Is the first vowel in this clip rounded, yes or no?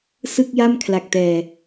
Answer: no